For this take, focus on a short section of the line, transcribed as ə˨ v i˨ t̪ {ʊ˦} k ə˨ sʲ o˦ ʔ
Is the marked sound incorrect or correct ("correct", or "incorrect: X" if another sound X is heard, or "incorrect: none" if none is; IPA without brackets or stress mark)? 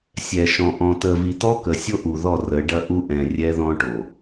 incorrect: ɔ˦